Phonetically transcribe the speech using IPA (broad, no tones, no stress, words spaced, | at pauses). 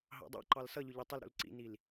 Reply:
ɦɑ̰dˤɑ̰ǃɑl sʌʎʊ ʎitˤɪl ɾṵlǀḭnil